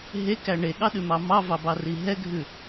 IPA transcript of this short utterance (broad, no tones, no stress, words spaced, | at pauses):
ɦekæ ɳeɠɑɗʉmɑ mɑvɑbɑri ɦɛɡʱʉ